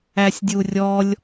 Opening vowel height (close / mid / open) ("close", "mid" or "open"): open